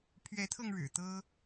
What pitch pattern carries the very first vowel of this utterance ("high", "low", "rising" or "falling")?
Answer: rising